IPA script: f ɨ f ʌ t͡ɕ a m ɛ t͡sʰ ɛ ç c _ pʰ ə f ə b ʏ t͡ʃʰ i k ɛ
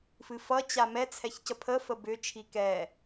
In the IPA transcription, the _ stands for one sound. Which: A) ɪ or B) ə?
B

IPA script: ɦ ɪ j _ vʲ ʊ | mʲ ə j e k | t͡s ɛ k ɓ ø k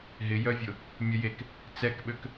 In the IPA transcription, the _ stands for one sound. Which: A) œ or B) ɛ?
A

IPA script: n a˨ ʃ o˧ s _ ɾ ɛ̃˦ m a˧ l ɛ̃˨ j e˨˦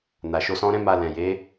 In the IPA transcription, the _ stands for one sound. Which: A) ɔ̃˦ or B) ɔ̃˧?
A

